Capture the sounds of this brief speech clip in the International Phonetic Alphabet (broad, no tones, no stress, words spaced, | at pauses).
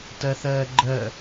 tɜθɜːɡ͡ǃɜ